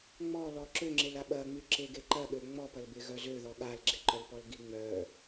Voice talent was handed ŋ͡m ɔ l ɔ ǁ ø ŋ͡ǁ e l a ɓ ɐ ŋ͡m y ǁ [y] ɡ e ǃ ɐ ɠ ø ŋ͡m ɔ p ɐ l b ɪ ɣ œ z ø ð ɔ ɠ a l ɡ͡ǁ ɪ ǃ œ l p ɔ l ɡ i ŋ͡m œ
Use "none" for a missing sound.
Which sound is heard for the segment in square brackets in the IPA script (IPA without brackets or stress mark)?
e